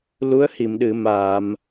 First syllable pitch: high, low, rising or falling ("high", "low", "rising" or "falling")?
rising